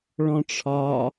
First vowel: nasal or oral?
nasal